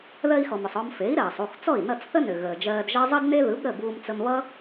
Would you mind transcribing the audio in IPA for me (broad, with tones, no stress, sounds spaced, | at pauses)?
ð ɜ˧ i̯ x ɔ˩ m ʏ˩ sˤ ɔ˧ m f e˩˥ i̯ ɾ ɜː˩ sˤ u˥˩ x t͡s ɔ˥˩ i̯ n ʌ˥˩ t͡s θ ə˥ n ʏ˩ ɣ əː˩ d͡ʒ ɜː˧ d ʒ ʌ˥ zˤ ʌ˥ d n e˥ ð ɯ˩˥ b ɾ ə˥˩ b uː˧ m t͡s ə˧ m β ʌ˥